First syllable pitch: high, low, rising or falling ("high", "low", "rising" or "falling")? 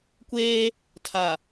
high